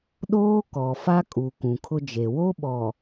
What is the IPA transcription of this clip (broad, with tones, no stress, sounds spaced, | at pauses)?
ɗ oː˦ k ɔ˨ f a˦ kʼ u˨ k ũ˨ kʰ ʊ˦ d͡ʒ e˨ w o˦ ɓ ɔ˨